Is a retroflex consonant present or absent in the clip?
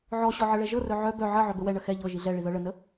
present